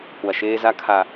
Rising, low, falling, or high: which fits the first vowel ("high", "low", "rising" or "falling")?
low